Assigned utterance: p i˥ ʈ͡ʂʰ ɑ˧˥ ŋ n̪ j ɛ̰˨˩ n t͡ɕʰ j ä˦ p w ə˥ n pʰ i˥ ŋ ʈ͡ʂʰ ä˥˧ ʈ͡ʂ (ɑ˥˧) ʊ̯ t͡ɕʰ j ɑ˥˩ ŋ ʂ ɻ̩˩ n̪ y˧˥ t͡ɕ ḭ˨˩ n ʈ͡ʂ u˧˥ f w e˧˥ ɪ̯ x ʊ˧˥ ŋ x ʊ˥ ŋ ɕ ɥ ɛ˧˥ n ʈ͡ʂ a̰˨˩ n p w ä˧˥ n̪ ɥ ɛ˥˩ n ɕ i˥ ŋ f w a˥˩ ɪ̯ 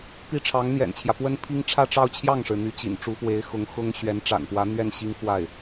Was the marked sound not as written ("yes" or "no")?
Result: no